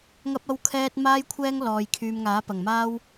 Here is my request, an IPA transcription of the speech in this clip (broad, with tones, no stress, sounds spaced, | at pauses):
ŋ ɐ˥ p̚ ɐ˥ w kʰ ɛː˥ t̚ m aː˥ j kʷʰ ɛː˥ ŋ l ɔː˧ j kʰ yː˨ m ŋ aː˨˥ p ɐ˨˩ ŋ m aː˥ w